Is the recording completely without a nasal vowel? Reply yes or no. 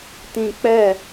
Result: no